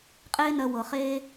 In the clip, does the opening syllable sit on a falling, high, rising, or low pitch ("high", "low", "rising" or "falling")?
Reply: high